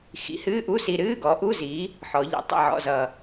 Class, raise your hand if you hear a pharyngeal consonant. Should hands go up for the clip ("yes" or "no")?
yes